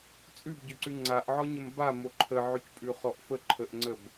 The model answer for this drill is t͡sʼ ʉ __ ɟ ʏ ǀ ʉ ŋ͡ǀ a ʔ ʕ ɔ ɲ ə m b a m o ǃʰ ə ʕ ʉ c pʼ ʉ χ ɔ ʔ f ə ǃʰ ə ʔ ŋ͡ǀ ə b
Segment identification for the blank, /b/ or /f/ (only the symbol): b